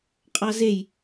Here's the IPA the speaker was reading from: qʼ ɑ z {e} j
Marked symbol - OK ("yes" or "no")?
yes